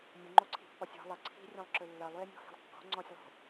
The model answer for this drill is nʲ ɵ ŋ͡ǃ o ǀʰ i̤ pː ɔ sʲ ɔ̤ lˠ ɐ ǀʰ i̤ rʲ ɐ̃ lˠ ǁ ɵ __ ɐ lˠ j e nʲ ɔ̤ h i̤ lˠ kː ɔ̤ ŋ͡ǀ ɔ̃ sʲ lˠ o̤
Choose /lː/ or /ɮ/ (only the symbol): lː